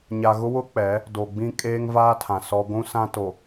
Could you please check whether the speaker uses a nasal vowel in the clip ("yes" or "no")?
yes